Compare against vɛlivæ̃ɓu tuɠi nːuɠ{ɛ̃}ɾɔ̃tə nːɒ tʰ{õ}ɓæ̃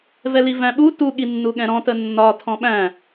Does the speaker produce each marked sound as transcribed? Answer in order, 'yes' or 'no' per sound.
yes, no

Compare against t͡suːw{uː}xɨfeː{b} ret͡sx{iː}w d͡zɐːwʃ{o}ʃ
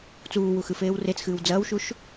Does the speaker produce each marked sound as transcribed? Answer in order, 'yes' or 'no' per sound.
no, no, no, no

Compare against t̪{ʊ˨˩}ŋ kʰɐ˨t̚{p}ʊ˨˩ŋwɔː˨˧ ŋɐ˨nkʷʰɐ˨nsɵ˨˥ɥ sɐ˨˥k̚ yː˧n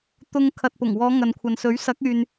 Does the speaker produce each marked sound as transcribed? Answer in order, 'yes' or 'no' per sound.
no, yes

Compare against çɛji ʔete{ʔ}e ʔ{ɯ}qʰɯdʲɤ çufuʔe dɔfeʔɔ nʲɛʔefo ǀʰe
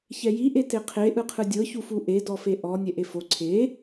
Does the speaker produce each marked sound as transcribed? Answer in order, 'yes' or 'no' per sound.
no, yes

